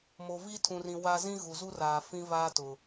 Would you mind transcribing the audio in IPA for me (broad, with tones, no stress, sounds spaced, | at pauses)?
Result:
m o˨ v i˦ tʰ ũ˨ r ĩ˨ w a˦ z ĩ˦ ɣ u˨ z u˦ r aː˨ f ĩ˦ v aː˦ t ʊ˨